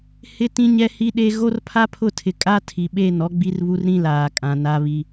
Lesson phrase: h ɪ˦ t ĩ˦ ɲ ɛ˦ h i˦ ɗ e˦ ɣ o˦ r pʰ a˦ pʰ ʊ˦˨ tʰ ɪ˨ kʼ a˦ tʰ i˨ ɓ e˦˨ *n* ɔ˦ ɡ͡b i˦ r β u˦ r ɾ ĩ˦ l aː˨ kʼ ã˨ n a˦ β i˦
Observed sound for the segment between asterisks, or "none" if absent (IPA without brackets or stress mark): n